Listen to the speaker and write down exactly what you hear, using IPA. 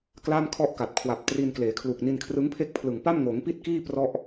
k l a˥˩ m kʰ ɔ˥˩ ʔ k a˨˩ t̚ kʰ w a˨˩ p̚ t r i˧ n k l eː˩˦ kʰ l u˨˩ k̚ n i˧ n kʰ r ɯ˦˥ ŋ pʰ e˥˩ k̚ pʰ l ɯ˨˩ ŋ p a˥˩ m ŋ oː˩˦ ŋ p i˥˩ t̚ k iː˥˩ p r ɔ˥˩ ʔ

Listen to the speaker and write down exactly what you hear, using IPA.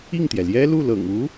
i˥˩ ŋ t̪ j ɛ˩ l j ɛ˥ l u˥˩ l ɤ̰˨˩ ŋ u˧˥

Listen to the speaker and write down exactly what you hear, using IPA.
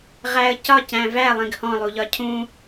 ʁ æ ə̯ c ɒ c æ̃ v æ lˠ ĩ ɡ h ɔ̃ lˠ u ʎ ɒ cʰ ũ

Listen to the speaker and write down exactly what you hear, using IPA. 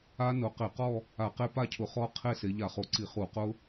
a˦˥ n ʊ˨˦ q ɪ˧˩˧ q ɔ˥˧ | a˧˩˧ q e˦˥ p a˥˧ cʰ ʊ˧˩˧ χ ɔ˦˥ qʰ e˥˧ s e˨˦ ʎ a˧˩˧ χ o˨˦ ǀ i˧˩˧ χ u˧˩˧ q ʊ˦˥

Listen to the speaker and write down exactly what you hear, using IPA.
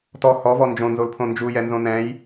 t ɔ h ɔ v ɔ n d͡ʒ õ n z o l pʰ õ n d͡ʒ u j ɛ n z õ n ɛ̃ j

